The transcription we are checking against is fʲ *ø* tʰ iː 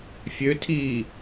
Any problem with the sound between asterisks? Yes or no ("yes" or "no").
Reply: no